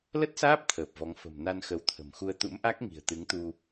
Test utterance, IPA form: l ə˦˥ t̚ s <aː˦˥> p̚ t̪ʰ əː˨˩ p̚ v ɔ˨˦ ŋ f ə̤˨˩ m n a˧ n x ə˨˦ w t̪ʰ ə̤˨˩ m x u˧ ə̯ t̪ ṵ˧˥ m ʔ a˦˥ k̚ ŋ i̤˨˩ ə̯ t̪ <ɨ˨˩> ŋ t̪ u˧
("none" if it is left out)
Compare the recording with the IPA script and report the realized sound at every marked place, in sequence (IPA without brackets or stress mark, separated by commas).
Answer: aː˦˥, ɨ˨˦